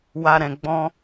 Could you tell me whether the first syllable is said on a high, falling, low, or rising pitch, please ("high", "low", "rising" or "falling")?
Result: high